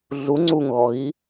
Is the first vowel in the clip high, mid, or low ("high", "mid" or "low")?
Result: high